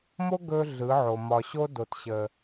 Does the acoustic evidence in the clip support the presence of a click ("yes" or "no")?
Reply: no